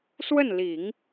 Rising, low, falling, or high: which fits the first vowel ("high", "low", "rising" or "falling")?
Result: falling